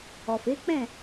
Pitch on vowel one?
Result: low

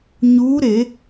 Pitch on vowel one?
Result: rising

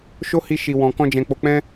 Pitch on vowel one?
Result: high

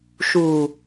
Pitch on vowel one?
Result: low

